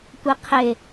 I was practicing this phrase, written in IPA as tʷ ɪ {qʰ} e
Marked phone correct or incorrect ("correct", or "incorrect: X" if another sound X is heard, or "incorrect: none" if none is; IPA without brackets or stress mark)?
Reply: correct